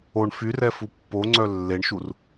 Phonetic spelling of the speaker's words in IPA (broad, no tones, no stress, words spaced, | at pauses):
oɳ fyr ɛfupːoŋ͡ǀœ lːeɳʃur